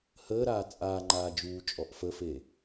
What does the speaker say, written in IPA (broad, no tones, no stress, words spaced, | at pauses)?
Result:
həː ɾaːt͡sʼaːŋ͡ǃaː d͡ʒuːt͡ʃʼɔʔ fəfeː